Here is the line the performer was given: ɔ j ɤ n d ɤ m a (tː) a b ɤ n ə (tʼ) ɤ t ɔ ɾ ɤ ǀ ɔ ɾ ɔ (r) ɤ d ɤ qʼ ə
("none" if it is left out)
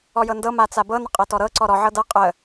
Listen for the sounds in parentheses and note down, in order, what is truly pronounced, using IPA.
t͡s, qʼ, ʕ

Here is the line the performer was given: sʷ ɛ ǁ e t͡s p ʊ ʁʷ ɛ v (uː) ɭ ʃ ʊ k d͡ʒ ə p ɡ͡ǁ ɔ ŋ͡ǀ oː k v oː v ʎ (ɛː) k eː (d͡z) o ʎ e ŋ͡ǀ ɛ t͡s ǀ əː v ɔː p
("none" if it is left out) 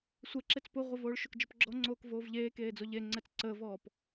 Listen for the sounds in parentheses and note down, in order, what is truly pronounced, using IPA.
oː, eː, d͡z

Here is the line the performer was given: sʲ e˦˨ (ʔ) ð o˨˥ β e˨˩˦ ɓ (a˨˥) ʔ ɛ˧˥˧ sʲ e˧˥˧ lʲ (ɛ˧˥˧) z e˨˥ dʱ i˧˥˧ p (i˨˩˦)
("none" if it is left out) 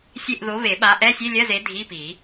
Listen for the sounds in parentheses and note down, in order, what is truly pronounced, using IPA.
ʔ, a˨˥, ɜ˧˥˧, i˨˩˦

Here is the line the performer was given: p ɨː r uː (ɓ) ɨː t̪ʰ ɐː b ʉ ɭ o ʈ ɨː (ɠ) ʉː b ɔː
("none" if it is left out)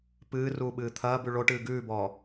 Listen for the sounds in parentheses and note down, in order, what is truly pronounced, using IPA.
ɓ, ɡ

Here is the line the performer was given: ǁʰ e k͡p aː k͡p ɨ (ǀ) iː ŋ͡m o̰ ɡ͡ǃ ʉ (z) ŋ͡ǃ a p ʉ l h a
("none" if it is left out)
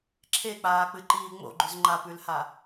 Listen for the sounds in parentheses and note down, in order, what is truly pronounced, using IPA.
ǃ, z

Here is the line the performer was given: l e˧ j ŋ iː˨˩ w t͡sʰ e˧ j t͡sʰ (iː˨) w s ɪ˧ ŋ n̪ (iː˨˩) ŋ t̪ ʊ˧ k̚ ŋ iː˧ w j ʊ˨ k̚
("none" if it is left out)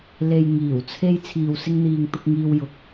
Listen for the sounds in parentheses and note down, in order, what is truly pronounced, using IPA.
iː˨, iː˨

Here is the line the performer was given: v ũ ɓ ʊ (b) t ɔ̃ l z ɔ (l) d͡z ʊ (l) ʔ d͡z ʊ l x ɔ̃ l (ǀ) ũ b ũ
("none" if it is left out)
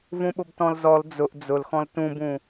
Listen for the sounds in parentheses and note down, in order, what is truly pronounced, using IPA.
b, l, none, t

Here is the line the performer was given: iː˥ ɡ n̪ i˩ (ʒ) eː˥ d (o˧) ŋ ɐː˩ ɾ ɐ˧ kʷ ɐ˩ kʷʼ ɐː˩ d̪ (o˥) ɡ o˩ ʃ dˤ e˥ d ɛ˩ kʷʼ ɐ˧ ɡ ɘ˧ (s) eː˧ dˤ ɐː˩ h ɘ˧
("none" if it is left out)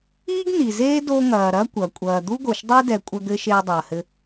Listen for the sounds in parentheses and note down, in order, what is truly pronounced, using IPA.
z, o˧, u˥, ʃ

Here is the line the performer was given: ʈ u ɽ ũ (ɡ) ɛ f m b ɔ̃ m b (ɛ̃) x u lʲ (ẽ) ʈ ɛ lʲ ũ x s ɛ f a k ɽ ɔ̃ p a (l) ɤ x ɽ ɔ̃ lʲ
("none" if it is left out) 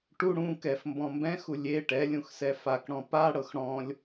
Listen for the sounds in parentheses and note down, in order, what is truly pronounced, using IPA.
k, ɛ̃, e, ɽ

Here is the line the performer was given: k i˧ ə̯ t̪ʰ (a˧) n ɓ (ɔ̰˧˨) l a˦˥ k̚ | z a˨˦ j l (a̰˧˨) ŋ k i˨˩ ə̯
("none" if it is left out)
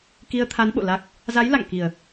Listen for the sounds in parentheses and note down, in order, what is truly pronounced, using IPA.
a˨˦, o̰˧˨, a̰˧˨

